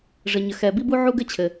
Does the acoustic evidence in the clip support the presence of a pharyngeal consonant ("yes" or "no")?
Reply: yes